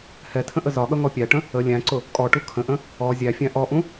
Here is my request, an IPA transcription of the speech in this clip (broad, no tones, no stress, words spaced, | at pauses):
hɛtʰə̃ ʔəzɒɠʌ ŋɔpʲæʈə̃ | ə lʲæ̃ǀʊ | kʼɔʈu kʰə̃ʔə̃ | ɔ zʲæfʲæ̃ ʔɔʔũ